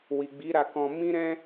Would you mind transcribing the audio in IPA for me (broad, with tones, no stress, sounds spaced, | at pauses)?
w i˨ ɡ͡b i˨˦ ɾ a˧ k ɔ̃˧ m ĩ˦ ɾ ɛ̃˦